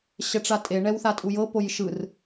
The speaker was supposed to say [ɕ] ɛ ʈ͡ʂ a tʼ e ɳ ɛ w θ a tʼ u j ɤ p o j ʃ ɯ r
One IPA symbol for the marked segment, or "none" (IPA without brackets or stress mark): ɕ